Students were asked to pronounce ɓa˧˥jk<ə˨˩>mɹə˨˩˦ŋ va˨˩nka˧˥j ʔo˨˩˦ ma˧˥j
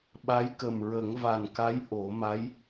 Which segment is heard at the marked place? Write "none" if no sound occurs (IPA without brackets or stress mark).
ə˨˩